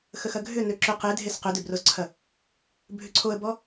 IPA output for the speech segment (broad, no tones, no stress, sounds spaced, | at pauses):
x ə x ɐ ɡʱ ʏ n ø ǁ ʏ q e dʱ e s q ʏ d ø b r o z ǀʰ ɐ | bʱ ʏ ǀʰ o ə̯ b ɔ